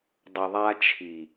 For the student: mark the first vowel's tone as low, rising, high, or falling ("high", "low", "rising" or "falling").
low